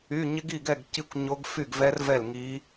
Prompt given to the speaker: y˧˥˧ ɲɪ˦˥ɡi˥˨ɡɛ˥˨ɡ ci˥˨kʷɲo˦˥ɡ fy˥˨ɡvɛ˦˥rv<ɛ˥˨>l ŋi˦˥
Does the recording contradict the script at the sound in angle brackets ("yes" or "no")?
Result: no